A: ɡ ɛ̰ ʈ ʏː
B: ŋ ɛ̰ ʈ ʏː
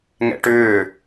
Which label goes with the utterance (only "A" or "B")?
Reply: B